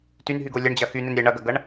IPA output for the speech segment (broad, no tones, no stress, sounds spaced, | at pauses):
t y n ɦ y ɡ o lʲ ɐ ɳ d͡ʑ ɐ x y n e n ɾʲ ɛ ɳ ɐ ɡ ɐ ɡ ɐ ɳ